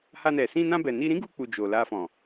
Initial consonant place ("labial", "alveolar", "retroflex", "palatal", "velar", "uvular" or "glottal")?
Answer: glottal